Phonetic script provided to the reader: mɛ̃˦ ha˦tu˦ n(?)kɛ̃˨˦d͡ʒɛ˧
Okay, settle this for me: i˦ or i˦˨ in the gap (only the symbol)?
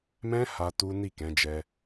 i˦˨